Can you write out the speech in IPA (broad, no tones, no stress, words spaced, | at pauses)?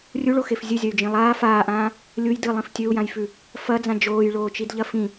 rʲuɭoxef zʲɨzʲɐy̯d͡ʒĩ lˠaː faːʔãː | lʲuj dɨlˠĩf tʲɵu̯jãjfʉ | fɐd͡zã d͡ʒoːjɭoːt͡ʃidʎɐ fĩ